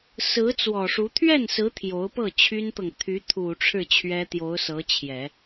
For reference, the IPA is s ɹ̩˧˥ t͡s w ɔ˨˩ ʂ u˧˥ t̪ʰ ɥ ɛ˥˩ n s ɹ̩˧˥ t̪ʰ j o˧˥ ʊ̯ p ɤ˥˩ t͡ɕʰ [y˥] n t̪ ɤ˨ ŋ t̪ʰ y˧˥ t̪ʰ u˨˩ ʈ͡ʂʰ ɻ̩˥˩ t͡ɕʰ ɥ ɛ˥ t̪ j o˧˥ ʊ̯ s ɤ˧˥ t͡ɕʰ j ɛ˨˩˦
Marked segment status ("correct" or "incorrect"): correct